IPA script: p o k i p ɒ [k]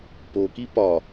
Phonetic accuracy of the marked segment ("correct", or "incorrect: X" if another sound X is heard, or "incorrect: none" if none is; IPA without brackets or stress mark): incorrect: none